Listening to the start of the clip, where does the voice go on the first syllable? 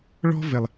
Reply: high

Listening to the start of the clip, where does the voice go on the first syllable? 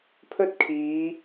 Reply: high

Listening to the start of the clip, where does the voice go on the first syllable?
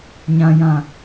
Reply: low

